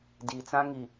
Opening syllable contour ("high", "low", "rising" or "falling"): low